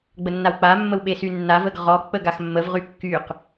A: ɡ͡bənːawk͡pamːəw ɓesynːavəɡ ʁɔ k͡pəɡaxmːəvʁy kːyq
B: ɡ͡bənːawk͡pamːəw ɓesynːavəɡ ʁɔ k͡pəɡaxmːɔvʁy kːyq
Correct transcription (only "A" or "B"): A